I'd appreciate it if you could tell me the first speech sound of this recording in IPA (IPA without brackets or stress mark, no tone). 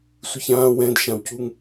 sʷ